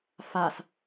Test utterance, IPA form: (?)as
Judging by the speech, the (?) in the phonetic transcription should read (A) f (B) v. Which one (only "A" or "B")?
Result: A